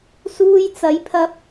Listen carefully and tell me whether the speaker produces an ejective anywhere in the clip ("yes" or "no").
no